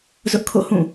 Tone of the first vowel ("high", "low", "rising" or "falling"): high